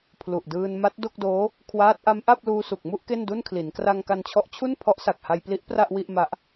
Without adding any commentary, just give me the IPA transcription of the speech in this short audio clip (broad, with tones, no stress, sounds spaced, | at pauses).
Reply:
pʰ l u˨˩ ʔ d ɯː˧ n m a˦˥ t̚ d o˥˩ k̚ d oː˦˥ | kʰ w aː˦˥ t̚ ʔ a˦˥ m ʔ a˥˩ p̚ l uː˧ s u˨˩ k̚ m u˥˩ ʔ k e˥˩ n d u˥˩ n kʰ l i˩˦ n k r a˧ ŋ k a˧ n t͡ɕʰ ɔ˦˥ ʔ t͡ɕʰ u˥˩ n pʰ ɔ˦˥ ʔ s a˨˩ k̚ h a˧ j p l i˦˥ ʔ p r a˥˩ ʔ w i˥˩ ʔ m a˦˥ ʔ